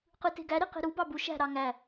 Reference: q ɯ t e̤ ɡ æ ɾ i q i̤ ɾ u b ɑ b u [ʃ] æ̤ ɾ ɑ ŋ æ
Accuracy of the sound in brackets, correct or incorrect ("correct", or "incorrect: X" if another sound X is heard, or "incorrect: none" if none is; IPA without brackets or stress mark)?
correct